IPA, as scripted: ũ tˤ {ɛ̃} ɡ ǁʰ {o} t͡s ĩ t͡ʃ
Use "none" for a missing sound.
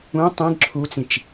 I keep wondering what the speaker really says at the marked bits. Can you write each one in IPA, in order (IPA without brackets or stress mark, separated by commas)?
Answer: ɛ̃, u